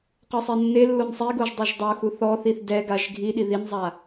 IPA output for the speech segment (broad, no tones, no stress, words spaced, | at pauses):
qɔsˤenːelːon sˤiɡoʒ dˤɯʒdˤoxu θɔθiθ dɛɡaʒ ɡʱiɗi ðinzˤa